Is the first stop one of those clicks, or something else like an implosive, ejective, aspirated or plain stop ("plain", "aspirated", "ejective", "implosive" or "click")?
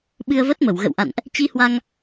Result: implosive